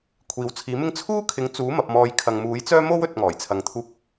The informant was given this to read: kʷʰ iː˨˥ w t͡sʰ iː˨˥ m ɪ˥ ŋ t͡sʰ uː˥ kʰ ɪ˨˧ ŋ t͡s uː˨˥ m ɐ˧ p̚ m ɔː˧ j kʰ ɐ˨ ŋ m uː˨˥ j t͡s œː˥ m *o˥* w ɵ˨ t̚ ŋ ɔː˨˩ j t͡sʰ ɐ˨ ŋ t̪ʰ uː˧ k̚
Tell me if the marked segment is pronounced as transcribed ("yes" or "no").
yes